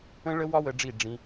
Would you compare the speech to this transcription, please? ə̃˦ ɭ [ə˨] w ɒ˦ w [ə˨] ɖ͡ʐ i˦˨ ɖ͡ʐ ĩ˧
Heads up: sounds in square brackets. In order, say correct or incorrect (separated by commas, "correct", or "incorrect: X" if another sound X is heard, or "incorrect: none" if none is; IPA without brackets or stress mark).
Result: incorrect: ə˦, incorrect: ə˧